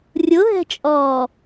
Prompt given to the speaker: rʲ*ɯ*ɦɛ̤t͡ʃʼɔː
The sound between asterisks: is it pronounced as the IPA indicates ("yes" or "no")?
no